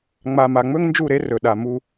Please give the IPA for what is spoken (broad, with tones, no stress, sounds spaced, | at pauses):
ŋ͡m a˨ m a˨ ŋ͡m ɵ˦ ŋ n d͡ʒ u˦˨ ɾ e˦ r ɵ˨ ɗ a˨ m u˦